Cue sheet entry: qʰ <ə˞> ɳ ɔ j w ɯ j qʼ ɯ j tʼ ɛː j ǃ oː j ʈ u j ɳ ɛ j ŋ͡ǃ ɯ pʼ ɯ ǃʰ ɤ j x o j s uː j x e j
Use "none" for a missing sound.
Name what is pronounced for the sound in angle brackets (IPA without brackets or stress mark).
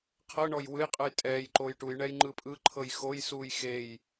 ɤ